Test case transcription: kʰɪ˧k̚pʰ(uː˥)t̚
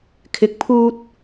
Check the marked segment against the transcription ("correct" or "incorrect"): correct